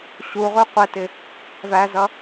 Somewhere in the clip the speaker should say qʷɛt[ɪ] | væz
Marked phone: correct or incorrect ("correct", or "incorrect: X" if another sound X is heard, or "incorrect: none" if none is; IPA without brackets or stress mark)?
correct